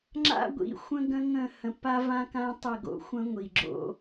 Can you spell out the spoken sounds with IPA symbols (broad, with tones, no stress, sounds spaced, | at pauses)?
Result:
ŋ͡ǁ a̰˦ ɡʷ ḭ˨˦ xʷ ə̃˦ ɡ ə̃˦ ŋ ə̃˦˨ h ə̃˨ p a˦ v ã˦ k ã˦ tˤ ə˦˨ ɡ o̰˦ xʷ ə̃˦ ŋʷ i˨ ɡ͡ǁ o̰˦